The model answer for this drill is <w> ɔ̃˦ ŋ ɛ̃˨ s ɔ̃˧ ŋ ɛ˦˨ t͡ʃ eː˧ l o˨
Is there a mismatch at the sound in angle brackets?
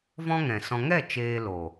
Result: yes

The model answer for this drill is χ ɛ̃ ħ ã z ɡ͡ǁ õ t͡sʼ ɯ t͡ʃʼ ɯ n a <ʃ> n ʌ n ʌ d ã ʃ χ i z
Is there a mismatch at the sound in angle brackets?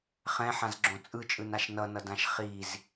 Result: no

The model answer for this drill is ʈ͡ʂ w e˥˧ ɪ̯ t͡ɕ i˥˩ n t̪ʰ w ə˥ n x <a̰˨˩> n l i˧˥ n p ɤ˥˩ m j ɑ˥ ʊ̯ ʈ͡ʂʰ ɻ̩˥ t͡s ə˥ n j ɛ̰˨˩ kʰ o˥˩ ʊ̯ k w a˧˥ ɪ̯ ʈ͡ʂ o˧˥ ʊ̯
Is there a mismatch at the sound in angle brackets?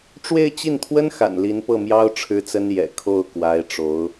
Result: no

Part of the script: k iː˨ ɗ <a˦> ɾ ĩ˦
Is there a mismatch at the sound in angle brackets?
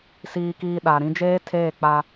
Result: yes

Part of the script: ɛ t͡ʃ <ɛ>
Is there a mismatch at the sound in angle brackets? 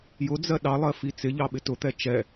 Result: no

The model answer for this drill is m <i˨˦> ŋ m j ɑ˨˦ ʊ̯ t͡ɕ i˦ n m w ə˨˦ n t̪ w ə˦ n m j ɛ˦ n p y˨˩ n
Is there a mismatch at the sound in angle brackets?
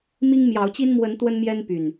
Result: yes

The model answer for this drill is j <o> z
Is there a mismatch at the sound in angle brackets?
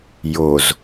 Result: no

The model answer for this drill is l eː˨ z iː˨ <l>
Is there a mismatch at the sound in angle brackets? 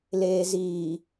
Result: yes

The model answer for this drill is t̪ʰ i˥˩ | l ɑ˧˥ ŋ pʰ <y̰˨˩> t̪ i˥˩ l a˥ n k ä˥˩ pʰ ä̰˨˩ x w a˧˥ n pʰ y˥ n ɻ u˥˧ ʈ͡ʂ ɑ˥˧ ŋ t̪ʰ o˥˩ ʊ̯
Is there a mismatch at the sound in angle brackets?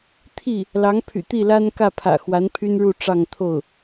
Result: no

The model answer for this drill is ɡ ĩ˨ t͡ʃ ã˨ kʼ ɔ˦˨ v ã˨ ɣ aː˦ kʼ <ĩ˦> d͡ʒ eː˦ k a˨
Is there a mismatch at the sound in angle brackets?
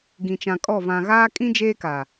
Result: no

